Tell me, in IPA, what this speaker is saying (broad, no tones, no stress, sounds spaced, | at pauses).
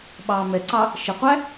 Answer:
ɓ ɑ m ɛ ǀ ɑ | ʃ ə qʷ æ